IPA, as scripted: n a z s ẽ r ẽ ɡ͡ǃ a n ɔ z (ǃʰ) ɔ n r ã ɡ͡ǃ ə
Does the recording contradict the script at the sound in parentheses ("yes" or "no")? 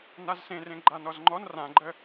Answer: yes